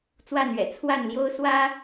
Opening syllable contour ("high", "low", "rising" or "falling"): falling